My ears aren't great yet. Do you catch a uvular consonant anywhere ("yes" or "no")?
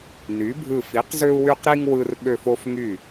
yes